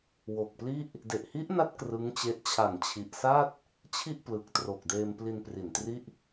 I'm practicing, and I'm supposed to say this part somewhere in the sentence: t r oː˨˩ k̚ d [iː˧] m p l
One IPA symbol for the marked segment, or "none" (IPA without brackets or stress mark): eː˧